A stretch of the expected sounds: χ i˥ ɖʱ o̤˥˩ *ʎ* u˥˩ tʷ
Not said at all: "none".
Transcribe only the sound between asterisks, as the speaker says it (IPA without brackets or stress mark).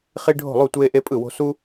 lˠ